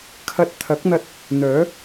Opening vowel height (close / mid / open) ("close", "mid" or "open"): open